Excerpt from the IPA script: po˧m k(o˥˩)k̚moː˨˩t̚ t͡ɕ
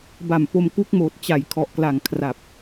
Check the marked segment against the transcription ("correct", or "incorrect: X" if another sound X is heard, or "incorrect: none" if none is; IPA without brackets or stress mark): incorrect: u˥˩